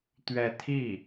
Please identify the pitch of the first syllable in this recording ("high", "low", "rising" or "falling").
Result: falling